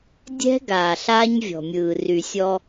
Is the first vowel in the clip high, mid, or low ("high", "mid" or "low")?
mid